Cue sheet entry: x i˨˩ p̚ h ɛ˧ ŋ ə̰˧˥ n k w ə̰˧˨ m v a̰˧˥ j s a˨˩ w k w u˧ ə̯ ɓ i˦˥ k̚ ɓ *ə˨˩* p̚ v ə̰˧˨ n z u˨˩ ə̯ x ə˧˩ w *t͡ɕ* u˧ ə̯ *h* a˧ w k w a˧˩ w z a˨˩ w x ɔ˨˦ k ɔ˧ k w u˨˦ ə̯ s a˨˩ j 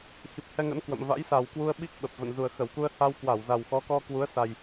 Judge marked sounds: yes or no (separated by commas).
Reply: yes, no, yes